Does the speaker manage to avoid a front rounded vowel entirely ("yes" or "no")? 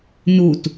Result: yes